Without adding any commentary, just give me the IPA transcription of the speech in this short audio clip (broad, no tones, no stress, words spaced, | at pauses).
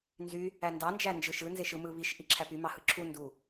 nzy | ændɑnd͡ʒæ nd͡ʒɯʃɯnzeʃ ɯmɯ βiʃ ʔiǁʰæpy mɑhɯǁʰu ndu